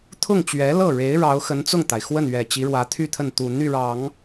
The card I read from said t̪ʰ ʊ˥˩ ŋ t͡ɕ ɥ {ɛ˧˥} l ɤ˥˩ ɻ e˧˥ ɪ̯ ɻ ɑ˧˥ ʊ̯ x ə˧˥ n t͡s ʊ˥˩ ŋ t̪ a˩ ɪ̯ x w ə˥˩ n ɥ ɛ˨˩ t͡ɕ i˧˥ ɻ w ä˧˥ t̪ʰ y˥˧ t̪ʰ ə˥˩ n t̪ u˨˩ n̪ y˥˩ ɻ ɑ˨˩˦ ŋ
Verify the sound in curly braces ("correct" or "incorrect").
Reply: correct